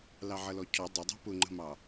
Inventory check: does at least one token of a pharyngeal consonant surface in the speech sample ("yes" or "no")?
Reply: yes